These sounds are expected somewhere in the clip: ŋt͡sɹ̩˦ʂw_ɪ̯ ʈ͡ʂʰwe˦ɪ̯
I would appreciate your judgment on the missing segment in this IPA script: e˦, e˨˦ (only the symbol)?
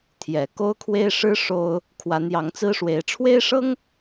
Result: e˨˦